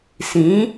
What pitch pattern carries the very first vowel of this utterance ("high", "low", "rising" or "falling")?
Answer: rising